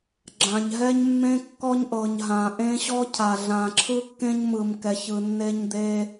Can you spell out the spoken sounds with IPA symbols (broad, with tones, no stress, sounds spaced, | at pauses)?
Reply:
ɡ͡ǁ ã˨ ɲ ɦ ɛ˦ ɲ mː ẽ˦ kː ɔ˦ ɲ ʔ ɤ˨ ɲ ɦ ã˨ ʔ ẽ˦ ɕ ɔ˦ cʰ a˨ ɮ ã˨ ǁʰ ɯ˦ kː ẽ˦ ɲ m ɯ˨ m k ɛ˨ ç ɯ˨ nː e˦ ɲ d̪ e˦